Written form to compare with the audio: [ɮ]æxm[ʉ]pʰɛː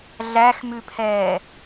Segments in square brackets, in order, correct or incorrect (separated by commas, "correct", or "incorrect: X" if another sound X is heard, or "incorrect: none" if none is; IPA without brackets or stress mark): correct, correct